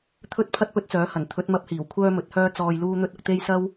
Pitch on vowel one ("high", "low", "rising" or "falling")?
high